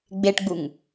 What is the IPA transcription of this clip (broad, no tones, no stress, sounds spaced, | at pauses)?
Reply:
ɡ͡b e ʈ ɡ͡b u ŋ